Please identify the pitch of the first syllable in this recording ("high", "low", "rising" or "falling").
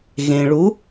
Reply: low